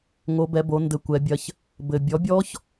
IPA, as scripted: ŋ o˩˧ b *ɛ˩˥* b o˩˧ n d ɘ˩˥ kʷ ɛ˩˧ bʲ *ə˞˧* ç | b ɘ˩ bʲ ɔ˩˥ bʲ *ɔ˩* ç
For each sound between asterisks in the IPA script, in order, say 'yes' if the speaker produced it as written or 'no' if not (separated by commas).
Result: no, no, no